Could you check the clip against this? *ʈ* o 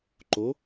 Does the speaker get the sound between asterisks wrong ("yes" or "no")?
yes